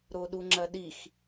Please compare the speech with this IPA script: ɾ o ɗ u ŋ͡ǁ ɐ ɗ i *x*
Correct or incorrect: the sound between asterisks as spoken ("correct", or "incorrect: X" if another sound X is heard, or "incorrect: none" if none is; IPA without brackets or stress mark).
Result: correct